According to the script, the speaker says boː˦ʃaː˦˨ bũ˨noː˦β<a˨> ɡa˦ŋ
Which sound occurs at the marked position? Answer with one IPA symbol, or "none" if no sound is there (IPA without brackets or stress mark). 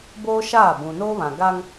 ã˨